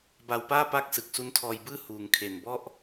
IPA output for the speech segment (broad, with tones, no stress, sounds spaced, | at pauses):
b a˨˩ w p aː˥˩ p a˦˥ k̚ s ɯ˨˩ k̚ s u˦˥ n tʰ ɔː˧ j b ɯː˥˩ h uː˩˦ ŋ kʰ e˨˩ n b ɔ˥˩ ʔ